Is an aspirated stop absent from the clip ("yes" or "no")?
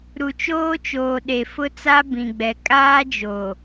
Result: yes